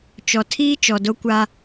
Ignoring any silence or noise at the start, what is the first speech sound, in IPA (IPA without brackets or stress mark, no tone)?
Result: t͡ʃ